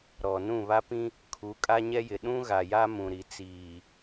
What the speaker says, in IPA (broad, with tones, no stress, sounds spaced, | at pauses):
ɾ ɔ˨ n ũ˦˨ β a˦ p ĩ˦ | kʰ u˨˦ kʼ a˦ ɲ ɛ˦ j ɪ˨ ɗ ũ˦ ɣ a˨ j a˦ m ũ˨ ɾ i˨ t͡s iː˨